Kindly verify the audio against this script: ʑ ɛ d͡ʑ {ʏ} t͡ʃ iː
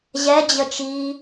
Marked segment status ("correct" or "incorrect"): incorrect